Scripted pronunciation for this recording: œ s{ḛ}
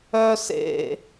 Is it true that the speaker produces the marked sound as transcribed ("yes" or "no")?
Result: yes